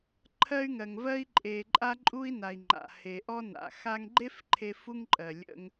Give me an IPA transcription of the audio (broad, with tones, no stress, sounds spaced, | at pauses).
ǃʰ ɜ˧ y̯ ŋ ɜ˩ ŋ v ɜ˧ i̯ ǃʼ e˩ ǃʼ a˧ ǃʼ u˧ i̯ n a˩ i̯ ŋ͡ǃ a̰˩ h e˩ ʔ ɔ˧ n a̰˩ x a˧ ŋ ɡ͡ǃ e˥ f ǃʰ e˧ f u˧ ŋ ǃʼ ɜ˩ lʲ ə̰˧ ŋ